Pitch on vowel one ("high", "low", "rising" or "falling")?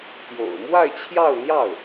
low